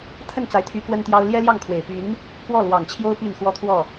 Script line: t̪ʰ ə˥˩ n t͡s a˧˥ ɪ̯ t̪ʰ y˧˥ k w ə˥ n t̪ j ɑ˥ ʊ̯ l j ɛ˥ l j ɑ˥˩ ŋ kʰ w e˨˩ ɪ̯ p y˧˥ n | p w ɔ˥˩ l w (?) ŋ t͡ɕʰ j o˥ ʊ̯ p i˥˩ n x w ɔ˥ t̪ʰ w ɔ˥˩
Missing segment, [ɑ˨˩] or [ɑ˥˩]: ɑ˨˩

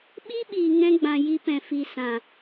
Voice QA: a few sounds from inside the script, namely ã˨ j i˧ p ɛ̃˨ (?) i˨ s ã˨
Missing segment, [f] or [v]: f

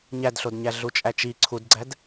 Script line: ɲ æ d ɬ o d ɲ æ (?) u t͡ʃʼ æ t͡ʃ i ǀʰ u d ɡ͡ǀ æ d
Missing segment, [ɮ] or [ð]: ɮ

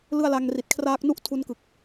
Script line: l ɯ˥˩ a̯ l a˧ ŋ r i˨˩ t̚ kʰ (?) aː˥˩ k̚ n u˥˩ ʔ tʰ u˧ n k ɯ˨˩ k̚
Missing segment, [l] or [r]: r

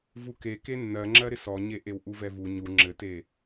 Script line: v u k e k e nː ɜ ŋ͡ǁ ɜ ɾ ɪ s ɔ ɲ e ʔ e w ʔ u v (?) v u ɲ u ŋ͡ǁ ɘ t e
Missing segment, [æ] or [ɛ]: ɛ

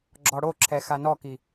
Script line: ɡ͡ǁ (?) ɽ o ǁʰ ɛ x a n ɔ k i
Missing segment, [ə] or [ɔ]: ɔ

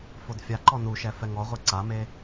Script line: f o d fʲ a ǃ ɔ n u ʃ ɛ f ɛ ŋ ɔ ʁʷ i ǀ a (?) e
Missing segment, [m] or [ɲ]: m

